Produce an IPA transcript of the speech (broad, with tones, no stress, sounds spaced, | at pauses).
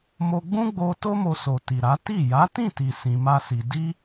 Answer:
m o˧ ɡ͡b ũ˦ ɡ͡b o˧ t o˦ m o˧ s o˨ t i˨ ɾ a˨˦ t i˦˨ j a˨˦ t ĩ˦˨ t i˨ s ĩ˧ m a˦ s i˧ d i˦